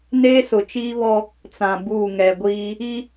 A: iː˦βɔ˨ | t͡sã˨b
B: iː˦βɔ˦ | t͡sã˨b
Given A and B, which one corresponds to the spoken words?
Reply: B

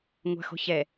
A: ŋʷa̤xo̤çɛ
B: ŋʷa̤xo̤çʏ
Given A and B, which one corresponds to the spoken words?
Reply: A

